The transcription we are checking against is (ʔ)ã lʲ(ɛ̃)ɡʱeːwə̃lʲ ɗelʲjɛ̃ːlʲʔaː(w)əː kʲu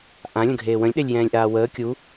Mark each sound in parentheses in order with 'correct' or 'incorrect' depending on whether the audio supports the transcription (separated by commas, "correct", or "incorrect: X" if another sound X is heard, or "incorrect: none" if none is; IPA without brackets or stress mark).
correct, incorrect: ə̃, correct